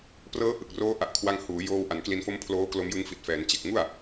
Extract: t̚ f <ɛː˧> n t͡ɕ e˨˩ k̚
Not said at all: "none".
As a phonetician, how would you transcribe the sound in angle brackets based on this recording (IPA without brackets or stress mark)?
ɛː˩˦